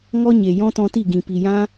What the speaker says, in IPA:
ŋ ɔ˦ ɲ e˨ j ɔ̃˦ t ɔ̃˧ t i˦˨ ɡ ĩ˨ p i˨ j ã˦

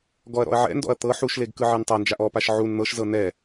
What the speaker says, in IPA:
ɡ ɔ ɐ̯ ɾ ɔ̰ ɐ̯ ʕ ɛ̰ n d ɔ̰ ɐ̯ t̪ ɤ ħ u ʃ l e ɡ k ɯ ʕ e n tˤ a n d͡ʒ a ʔ ɔ p a ʃ ʕ u n n̪ ɤ ʃ z ɤ n ɛ

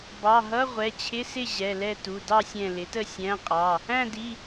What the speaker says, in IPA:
b ɑ˩˧˩ ɦ ʌ˧˥˧ ʁʷ ɛ˩˧˩ t͡ɕʰ ɪ˧˥˧ s ɪ˥˨ ʑ ɛ˩˧˩ l ɛ˥˨ t u˩˧˩ d ɑ˥˨ sʲ ɛ̃˧˩ l ɪ˩˥ t ə˥˨ sʲ æ̃˧˥˧ qʼ ɑ˩˧˩ | æ̃˥˨ d i˩˧˩

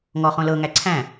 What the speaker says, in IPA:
ŋ ɔ χ õ l ɤ ŋ æ ǀʰ æ̃

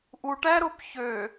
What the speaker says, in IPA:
ʔ u ʈ æ ɾ o p ç ø

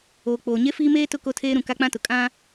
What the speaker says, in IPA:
oː˨ k͡p oː˨ ɲ e˦ f iː˦ m eː˦ t ʊ˦ k o˦ tʰ eː˦ ɾ ũ˨ k a˦ k͡p ã˦ t ʊ˨ kʼ ã˦

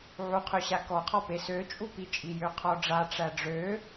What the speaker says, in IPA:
ʕ u qʰ ø ɕ a k ɔ qʰ ɔ p e s ø t͡ʃʼ u p i t͡ʃʼ i j ø qʰ ɔ ɖ͡ʐ a ʈ͡ʂ æ ɖ͡ʐ ø

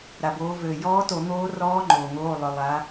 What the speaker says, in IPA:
ɾ a˩ b oː˩˧ v øː˩ j ɔː˧˥ t o˧˩˧ n̪ oː˧˥ r ɔː˧˥ ŋ͡ǃ oː˩ ŋ oː˩˧˩ lˠ ʏ˩ lˠ a˩˧

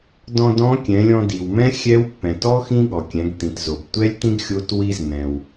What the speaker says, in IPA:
d ɔ̃˧ d ɔ̃˧˥ kʲ ɛ̃˩˧ lʲ ɔ̃˧ d i˩ w m ɛ̃˥ xʲ ɛ˧˥ w pː ɛ̃˩ t ɔ˥ x ĩ˥ ɠ ɔ˩ kʲ ɛ̃˩˧ ɡ t̪ ĩ˩ t z o˩ b tʷ ɛ˥ lʲ t ĩ˥ ɡ xʲ o˧˥ t w i˥ z n̪ ɛ̃˩ w

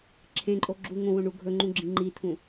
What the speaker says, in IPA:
ǁʰ ẽ ǃʼ o ɡ͡ǁ u ŋ õ w õ ɳ u ɡʱ ɵ ŋ͡ǃ ũ ɡ͡ǁ ĩ ŋ͡ǃ i t̪ʰ ũ

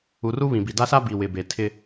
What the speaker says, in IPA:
u˨ r u˦ β ĩ˨ b i˨ d a˦ s a˦ b iː˨ w ɪ˨ b e˨ tʰ ɪ˦

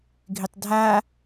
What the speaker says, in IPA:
ɡʱ ɪ tˤ dʱ a

